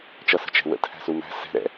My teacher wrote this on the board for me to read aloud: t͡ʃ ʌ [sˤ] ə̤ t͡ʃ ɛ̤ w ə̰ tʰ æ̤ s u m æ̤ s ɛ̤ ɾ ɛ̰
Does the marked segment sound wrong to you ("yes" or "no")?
yes